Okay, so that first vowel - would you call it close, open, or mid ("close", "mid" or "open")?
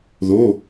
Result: mid